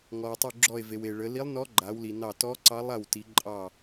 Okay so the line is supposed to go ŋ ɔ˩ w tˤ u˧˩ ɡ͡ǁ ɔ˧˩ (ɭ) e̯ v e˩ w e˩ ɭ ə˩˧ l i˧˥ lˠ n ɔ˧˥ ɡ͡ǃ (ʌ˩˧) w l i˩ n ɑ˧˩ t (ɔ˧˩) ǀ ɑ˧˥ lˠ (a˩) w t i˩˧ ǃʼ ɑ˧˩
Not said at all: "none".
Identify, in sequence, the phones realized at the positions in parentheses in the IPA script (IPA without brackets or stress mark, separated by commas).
none, a˩˧, ɔ˧˥, a˧˩